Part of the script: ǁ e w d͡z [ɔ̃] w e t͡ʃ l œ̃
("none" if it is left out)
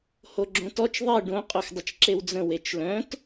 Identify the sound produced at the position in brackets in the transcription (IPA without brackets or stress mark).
ə̃